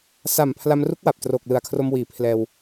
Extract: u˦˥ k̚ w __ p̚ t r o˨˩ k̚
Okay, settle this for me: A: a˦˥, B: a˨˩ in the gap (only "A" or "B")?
B